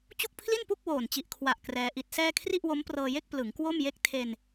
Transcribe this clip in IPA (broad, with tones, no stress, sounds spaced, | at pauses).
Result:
t͡ɕ u˥˩ k̚ pʰ l i˥˩ n p u˥˩ k̚ w oː˨˩ n t͡ɕ i˨˩ ʔ kʰ w a˨˩ ʔ k r ɛː˧ ʔ i˦˥ t̚ s ɛː˥˩ kʰ r i˥˩ ʔ w o˦˥ m p r ɤː˧ j e˥˩ k̚ p l ɯ˩˦ ŋ k w o˥˩ m j e˥˩ k̚ tʰ e˧ n